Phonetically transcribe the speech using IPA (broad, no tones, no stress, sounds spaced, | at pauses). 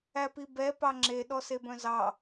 æ p i b ɛ p ɑ ŋ͡ǁ e ɗ ɔ s e b œ̃ z ɑ